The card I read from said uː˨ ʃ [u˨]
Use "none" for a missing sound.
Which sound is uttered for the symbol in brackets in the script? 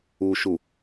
u˨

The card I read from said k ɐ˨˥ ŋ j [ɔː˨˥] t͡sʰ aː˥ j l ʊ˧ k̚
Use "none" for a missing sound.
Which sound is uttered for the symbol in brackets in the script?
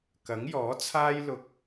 ɔː˨˥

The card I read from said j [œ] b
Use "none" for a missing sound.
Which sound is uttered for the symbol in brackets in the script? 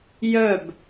œ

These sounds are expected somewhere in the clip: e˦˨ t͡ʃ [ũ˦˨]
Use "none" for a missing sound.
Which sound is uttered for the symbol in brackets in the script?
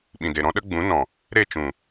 ũ˨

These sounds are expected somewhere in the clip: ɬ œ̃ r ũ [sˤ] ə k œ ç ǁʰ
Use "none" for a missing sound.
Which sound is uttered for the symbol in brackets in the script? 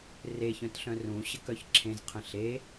ɕ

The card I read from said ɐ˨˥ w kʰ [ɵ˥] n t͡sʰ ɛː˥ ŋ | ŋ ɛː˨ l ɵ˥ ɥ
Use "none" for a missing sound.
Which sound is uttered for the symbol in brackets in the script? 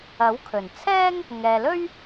ɵ˨˩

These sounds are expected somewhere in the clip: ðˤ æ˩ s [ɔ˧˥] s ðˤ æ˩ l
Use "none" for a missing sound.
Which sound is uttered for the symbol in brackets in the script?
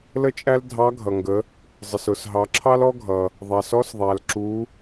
ɔ˧˥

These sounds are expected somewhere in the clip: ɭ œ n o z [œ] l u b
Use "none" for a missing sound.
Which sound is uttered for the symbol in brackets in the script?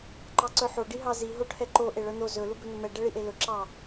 ɵ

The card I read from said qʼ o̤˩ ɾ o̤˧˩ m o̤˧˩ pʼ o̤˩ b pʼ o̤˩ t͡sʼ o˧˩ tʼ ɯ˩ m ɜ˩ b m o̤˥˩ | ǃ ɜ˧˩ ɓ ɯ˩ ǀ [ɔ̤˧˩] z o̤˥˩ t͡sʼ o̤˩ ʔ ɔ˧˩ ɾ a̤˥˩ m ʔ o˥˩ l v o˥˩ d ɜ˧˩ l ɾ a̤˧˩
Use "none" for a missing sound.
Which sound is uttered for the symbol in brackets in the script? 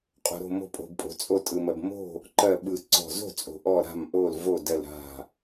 ɔ̤˧˩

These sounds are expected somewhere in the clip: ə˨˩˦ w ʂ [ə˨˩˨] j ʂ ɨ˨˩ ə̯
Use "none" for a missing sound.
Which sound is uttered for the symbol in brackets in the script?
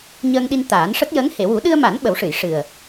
ɨ˨˩˨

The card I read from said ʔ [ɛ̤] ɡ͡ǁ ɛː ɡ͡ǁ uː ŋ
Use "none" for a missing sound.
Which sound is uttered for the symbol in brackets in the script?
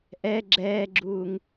ɛ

